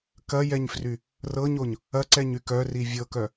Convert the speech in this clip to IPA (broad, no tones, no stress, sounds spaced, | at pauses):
k ɐ j ɛ ɲ f r y | r ɤ ɲ o ɲ | ɐ ǀ ɛ ɲ y k œ r i vʲ ɤ k œ